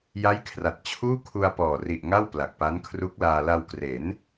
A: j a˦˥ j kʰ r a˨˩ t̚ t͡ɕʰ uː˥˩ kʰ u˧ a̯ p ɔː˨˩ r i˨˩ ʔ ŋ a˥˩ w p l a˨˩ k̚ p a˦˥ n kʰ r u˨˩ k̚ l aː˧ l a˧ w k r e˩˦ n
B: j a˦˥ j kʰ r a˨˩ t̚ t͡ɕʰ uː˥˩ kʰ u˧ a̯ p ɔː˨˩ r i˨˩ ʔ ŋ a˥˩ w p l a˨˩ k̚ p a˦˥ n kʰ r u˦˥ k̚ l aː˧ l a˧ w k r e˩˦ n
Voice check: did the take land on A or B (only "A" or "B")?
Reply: B